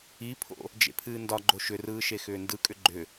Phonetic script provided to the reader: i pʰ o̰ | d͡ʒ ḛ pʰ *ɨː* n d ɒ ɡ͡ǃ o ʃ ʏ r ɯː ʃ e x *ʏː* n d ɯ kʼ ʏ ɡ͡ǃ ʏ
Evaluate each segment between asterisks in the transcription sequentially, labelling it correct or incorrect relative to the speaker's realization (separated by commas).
correct, correct